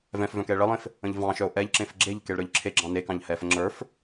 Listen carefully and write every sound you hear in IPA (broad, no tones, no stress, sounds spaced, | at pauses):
v ɛ̃ f v œ̃ k ɛ e̯ ɭ ə lˠ ẽ f | ə̃ ʎ v ɑ̃ ʃ œ o̯ ʔ ɛ ʎ ǁ ẽ f ɡ͡ǁ e ʎ k e ɭ ɾ ə˞ ʎ ǁʰ e ɡ͡ǁ ɑ̃ n e k ɑ̃ ʎ h ɛ f ə ŋ͡ǁ ə˞ f